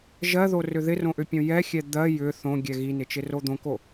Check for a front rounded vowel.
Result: present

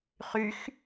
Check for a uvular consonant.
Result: present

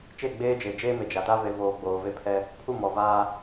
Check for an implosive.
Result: absent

